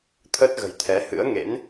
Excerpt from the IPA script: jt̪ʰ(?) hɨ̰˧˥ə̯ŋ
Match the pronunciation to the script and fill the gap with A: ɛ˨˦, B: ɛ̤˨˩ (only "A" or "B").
A